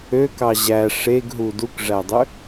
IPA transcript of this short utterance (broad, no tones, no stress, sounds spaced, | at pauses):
ø k ɑ ʑ æ ʂ e ɡ ɦ u d u k ʐ æ dˤ ø